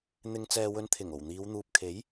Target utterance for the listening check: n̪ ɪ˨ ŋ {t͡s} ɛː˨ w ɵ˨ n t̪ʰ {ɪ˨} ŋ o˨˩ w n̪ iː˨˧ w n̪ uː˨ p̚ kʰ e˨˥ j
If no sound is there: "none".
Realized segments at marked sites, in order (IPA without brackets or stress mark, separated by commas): t͡s, ɪ˨˩